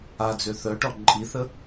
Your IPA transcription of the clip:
ad͡zø θœʈɔ ǃʼiθə

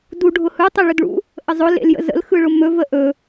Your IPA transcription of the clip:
du ɖʱʊhɯ tˤeɭɵdɭṵ | ʔəzˤʊ lḛljə̰zə̰l xɯɭʊmɵ vəʔɵ

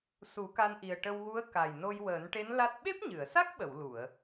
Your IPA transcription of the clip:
su˨˩˦ka˧nʔi˨˩ə̯ ʈə˧wɣu˧˥ə̯ ka˨˩jno˧jwəː˨˩˦nʈe˧˥n la˦˥t̚ ɓe˦˥p̚ɲɨ˨˩˨ə̯sa˦˥k̚ɓə˨˩˨w lu˨˩˨ə̯

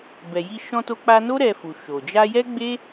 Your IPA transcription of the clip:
bɛ˨ji˧ ʃɔ̃˧to˧k͡pa˧no˦ ɾɛ˧fu˨ ʃo˨ d͡ʒa˧jɛ˦ɡ͡be˦

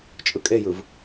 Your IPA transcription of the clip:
t͡ʃʼɯkʼejɯv

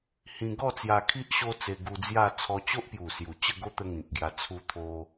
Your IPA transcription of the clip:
hĩ˧ ɡɔ˥˧t͡sja˧ kʰi˦ʔ ɕo˦t͡se˧ ɡu˧d͡zja˥˧ t͡sʰɔ˧t͡ɕo˦ʔpju˨˩ sju˨˩t͡ɕə˥˧ɡo˦ t̪ə˦ŋĩ˨k̚ɡja˧ t͡sʰu˧ t̪ʰo˧

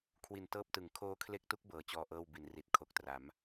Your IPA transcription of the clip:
kʰwi˨˩ntɤː˦˥p̚tɯ˩˦ŋ kʰoː˦˥kʰle˦˥k̚tu˦˥k̚ bɤː˨˩t͡ɕɔː˧ ʔɤː˥˩w bi˩˦n ri˨˩t̚ kʰo˨˩k̚ tra˩˦m

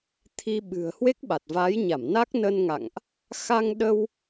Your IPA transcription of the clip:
t̪ʰi˧ɓɨ̤˨˩ə̯ hwe˦˥k̚ɓa˨˩t̚vaː˨˦jɲa˧˩m na˦˥k̚nə˧nŋa̰˧˨ŋʔ | xa˧ŋɗə˧w

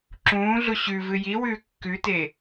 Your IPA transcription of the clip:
ǁũːɮu ɕʉ vɨjiwʉː kːʉte

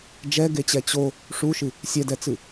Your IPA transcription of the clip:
d͡ʒɛɡet͡ɕɛ t͡ɕo | ʂuʃɨ | sʲɛdɛt͡sɨ

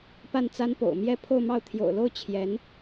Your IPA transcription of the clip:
pa˥˩nt͡sa˥npo̰˨˩ʊ̯ mjɛ˥˧ pʰo˥˧ʊ̯mɑ˥˩ʊ̯ t̪ʰjo̰˨˩ʊ̯lo˥˩ʊ̯ t͡ɕʰjɛ˧˥n

